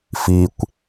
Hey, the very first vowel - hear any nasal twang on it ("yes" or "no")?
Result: no